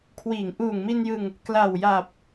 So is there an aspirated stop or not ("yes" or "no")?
yes